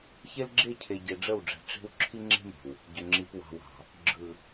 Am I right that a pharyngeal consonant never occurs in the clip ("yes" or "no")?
yes